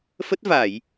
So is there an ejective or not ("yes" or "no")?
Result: no